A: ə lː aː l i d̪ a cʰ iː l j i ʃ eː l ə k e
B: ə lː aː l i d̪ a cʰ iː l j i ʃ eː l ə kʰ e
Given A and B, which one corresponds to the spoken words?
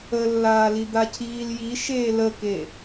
A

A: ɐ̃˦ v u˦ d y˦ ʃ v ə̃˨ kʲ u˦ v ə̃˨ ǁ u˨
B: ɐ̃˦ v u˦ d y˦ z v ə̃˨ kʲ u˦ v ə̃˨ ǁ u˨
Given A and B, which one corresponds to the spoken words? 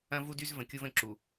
B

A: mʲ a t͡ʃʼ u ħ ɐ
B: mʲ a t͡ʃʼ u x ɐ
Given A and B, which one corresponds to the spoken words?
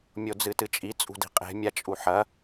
A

